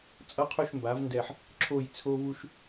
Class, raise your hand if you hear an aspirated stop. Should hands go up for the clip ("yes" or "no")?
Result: yes